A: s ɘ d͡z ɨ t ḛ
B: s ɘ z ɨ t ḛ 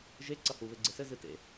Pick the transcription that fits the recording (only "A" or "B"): B